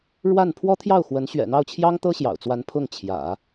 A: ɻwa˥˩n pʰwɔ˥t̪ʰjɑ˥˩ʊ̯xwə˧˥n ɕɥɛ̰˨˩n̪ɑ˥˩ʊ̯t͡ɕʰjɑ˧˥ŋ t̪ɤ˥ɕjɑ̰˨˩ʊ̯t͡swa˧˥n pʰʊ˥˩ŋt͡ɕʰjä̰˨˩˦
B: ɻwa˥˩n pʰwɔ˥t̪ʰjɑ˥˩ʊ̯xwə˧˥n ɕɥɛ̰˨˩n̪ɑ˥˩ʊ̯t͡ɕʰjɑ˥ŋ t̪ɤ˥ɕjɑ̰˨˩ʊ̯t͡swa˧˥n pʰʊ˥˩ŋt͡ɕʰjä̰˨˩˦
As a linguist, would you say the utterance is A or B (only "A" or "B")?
B